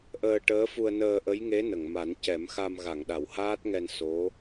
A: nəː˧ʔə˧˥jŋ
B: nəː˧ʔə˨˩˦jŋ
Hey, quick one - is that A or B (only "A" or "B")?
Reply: A